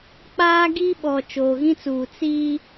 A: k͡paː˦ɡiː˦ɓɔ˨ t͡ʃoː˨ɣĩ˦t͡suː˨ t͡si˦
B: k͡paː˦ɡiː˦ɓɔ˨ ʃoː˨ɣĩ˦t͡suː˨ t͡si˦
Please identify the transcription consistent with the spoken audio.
A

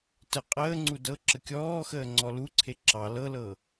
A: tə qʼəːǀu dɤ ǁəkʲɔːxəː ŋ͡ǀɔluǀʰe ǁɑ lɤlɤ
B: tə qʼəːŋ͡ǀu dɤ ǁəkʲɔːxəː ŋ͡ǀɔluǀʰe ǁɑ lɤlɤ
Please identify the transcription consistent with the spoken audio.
B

